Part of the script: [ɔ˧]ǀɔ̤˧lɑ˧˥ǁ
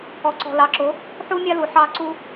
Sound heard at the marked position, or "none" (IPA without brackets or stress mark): ɔ˧